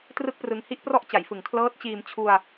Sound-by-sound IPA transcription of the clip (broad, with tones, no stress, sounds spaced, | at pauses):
t r ɯ˥˩ k̚ p r ɯ˧ ŋ h i˥˩ ʔ p r ɔ˥˩ ʔ t͡ɕ a˩˦ j f ɯ˩˦ ŋ kʰ l ɤː˦˥ t̚ t͡ɕ iː˧ m t͡ɕʰ u˧ a̯